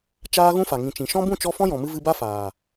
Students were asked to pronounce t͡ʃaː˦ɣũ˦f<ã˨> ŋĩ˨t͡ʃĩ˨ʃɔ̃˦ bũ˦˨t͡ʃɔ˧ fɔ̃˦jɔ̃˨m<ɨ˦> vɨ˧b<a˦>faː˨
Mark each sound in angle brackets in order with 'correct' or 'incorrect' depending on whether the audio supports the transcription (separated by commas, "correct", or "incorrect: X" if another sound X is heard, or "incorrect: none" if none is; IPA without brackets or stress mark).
incorrect: a˨, incorrect: ɨ˧, correct